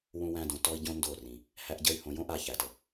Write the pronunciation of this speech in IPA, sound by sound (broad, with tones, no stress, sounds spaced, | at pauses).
w ũ˧ w æ̃˧ d õ˨ t ɔ˦ i̯ ɟ õ˦ n d o˦˨ r ĩ˨ | h æ˦ ʔ ɟ ə˦ y̯ h õ˧ j õ˦ ʔ a˧ ç æ˨ t ə˨